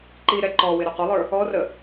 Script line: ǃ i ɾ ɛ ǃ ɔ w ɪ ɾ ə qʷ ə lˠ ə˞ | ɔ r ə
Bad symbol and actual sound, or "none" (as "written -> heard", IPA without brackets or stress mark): none